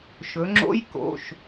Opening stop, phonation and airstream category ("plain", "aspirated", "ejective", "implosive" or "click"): click